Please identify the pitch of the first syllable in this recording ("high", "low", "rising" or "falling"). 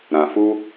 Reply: low